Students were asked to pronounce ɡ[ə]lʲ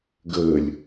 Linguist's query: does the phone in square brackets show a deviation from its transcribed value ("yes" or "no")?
yes